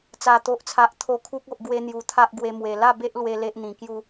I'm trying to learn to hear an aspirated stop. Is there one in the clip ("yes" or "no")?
yes